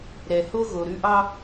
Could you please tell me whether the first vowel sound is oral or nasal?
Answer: oral